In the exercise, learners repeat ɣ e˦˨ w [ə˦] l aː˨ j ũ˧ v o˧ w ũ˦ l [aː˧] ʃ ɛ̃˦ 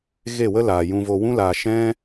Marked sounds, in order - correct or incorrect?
correct, correct

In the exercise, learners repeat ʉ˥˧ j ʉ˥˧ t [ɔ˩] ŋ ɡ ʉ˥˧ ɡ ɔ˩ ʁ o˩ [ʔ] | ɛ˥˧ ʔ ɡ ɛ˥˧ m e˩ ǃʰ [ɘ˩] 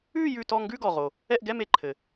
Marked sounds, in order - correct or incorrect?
incorrect, incorrect, correct

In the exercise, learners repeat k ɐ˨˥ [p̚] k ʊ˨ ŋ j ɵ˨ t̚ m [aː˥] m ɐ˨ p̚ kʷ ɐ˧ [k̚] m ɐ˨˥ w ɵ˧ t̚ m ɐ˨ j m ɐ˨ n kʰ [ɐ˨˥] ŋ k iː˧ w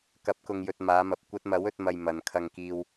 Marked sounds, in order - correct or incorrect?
correct, incorrect, incorrect, incorrect

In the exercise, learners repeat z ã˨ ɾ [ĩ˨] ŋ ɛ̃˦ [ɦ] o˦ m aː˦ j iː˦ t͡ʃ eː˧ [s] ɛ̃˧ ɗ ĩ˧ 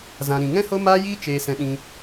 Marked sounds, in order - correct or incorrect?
correct, incorrect, correct

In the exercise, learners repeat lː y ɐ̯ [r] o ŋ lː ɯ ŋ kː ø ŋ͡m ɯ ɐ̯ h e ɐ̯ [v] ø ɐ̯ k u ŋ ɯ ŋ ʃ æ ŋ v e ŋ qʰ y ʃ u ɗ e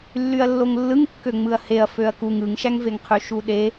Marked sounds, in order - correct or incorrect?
incorrect, incorrect

